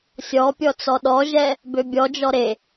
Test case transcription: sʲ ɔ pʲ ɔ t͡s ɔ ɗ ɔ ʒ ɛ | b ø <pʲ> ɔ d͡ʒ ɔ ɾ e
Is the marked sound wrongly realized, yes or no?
yes